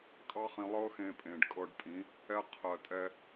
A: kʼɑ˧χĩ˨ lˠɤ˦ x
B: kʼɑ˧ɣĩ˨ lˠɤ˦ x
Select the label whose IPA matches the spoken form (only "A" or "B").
A